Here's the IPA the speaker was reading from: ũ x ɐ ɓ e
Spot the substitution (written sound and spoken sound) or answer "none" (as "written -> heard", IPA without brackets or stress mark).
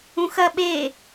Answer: none